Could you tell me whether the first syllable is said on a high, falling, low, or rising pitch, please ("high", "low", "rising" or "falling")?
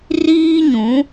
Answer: high